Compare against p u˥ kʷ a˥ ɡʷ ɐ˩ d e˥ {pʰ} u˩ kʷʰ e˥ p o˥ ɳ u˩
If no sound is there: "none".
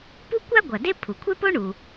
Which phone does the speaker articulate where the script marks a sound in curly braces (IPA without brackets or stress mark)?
pʰ